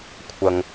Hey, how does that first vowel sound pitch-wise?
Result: high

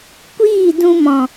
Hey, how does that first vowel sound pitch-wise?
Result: falling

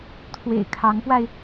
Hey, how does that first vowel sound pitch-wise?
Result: low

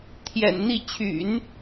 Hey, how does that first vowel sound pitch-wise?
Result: low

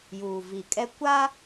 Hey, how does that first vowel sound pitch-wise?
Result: low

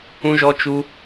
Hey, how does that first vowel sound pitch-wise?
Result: high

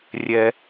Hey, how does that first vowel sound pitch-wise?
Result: low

